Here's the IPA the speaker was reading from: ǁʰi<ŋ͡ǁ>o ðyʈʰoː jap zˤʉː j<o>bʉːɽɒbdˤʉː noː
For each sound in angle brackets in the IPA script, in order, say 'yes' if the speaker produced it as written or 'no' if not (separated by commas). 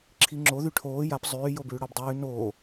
yes, yes